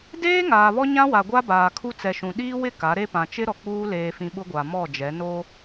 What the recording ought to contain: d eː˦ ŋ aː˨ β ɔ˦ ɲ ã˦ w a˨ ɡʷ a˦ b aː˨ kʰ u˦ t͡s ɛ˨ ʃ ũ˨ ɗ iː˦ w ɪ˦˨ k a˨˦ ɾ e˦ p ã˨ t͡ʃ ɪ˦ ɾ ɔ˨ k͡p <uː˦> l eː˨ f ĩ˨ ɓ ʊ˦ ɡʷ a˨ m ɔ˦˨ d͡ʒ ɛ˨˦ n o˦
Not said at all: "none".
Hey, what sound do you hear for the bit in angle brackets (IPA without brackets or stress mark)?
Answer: uː˦